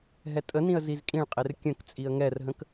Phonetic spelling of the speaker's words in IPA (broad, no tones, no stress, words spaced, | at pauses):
ɦɛtʼənĩə̯ zizkʼĩɭqʼer kʲə̃k t͡sʼiə̯ŋɛrɦə̃k